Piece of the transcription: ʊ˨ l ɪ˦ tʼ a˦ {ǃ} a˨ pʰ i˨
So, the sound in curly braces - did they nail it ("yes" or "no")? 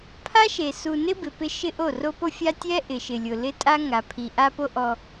no